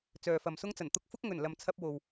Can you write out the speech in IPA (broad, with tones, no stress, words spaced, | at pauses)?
t͡sœː˨fɐ˨msʊ˥ŋt͡sɐ˨˩n t̪ʊ˧k̚fʊ˥k̚ŋɵ˨˩n lɐ˨mt͡sʰɐ˧p̚ wo˨w